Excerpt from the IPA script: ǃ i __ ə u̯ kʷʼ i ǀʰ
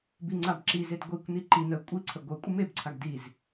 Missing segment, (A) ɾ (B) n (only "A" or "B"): B